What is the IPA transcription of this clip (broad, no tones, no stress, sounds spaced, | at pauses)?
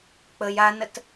k͡p ə j a n ə t